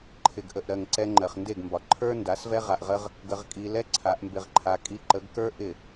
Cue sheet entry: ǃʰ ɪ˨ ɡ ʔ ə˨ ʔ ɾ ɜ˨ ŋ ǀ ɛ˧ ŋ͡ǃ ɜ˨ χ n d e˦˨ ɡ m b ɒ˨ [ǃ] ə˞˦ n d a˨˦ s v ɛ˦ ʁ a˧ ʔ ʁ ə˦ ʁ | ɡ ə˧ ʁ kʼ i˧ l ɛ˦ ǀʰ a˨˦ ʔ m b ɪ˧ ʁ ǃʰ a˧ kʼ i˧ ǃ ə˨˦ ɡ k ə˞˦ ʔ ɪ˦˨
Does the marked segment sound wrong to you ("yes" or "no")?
yes